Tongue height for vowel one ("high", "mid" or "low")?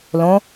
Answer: mid